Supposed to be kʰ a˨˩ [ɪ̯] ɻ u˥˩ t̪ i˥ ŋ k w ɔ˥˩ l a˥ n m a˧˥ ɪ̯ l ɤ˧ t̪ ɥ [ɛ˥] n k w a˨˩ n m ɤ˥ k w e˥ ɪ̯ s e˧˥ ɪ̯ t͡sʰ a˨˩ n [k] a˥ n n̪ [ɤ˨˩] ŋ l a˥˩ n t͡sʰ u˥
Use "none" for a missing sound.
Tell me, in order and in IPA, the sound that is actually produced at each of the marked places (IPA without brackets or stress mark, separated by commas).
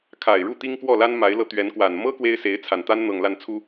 ɪ̯, ɛ˧˥, t̪, ɤ˨˩